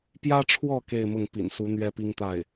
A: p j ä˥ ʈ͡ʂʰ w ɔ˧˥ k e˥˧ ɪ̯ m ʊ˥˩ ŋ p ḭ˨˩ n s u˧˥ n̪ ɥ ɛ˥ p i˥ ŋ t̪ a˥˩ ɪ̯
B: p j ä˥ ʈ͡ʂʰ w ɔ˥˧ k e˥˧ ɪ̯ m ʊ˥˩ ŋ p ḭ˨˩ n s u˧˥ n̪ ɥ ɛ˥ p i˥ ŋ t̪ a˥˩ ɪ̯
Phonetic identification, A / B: B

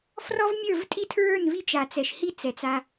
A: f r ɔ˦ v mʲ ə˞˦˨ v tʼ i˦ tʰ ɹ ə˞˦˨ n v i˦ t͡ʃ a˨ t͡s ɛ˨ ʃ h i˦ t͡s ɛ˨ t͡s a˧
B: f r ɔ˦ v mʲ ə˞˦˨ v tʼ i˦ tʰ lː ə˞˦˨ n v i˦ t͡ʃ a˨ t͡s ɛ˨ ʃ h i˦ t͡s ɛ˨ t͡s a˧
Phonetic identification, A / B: A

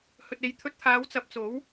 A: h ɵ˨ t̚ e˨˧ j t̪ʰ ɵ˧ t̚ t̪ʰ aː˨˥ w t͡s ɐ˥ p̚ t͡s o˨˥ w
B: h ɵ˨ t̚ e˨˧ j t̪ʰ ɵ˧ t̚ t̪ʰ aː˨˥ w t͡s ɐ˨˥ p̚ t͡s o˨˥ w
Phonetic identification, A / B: B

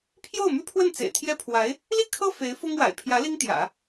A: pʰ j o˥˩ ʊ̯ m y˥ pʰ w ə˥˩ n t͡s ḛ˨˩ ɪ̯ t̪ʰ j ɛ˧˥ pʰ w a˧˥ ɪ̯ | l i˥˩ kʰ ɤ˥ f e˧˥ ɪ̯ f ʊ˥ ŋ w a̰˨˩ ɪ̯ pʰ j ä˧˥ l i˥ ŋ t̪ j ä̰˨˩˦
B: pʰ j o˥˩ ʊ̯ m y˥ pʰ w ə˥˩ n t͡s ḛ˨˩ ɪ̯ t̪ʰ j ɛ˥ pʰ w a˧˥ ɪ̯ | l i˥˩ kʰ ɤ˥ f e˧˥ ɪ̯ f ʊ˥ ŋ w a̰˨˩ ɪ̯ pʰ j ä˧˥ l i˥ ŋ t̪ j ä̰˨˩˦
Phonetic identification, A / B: B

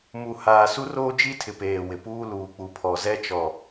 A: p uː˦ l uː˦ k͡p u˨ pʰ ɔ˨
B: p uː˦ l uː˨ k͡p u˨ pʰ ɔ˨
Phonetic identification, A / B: B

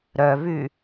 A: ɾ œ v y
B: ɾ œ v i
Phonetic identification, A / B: A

